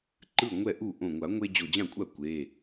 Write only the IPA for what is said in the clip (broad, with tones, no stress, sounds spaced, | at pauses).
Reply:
ǃ ɯ˥˩ ŋʷ ɛ˥˩ ʔ u˥˩ ʔ õ˧˩ ŋʷ a˨˩˦ ŋʷ e˦ d͡ʑ o˧˩ d͡ʑ ã˥˩ kʷʼ a˥˩ kʷ e˩˧˩